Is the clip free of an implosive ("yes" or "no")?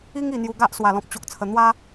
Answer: yes